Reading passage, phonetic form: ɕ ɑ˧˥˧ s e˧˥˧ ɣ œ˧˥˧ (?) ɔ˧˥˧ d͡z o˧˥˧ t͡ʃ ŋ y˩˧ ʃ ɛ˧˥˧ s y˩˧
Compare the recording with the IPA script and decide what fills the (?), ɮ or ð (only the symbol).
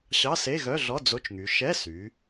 ɮ